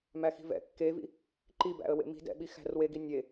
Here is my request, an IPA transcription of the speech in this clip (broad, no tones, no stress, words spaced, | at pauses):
mæxi̤vɛ̰ kːevḭ | ǃibæ̰ə̯ wḛmi̤ dɛ̰ɓi xæ̤rweɡi nʲe